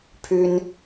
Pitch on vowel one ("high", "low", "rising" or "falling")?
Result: high